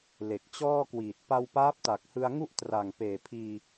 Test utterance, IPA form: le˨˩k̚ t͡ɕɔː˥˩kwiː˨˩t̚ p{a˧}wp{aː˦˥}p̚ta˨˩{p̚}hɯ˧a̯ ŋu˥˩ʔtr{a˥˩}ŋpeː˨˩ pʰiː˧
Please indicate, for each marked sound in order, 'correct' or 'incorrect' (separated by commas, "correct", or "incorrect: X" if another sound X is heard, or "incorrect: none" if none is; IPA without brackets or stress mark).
correct, correct, incorrect: k̚, incorrect: a˨˩